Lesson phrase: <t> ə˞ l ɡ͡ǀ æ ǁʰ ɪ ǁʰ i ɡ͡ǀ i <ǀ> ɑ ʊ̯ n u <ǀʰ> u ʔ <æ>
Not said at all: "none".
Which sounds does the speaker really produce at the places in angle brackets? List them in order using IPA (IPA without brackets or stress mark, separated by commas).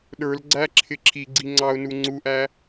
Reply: ɗ, ŋ͡ǀ, ŋ͡ǀ, æ